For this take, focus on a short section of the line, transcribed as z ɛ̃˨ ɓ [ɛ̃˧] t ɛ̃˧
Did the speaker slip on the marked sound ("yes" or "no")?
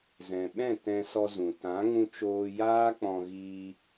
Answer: yes